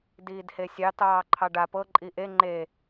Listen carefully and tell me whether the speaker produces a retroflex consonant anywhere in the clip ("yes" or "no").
yes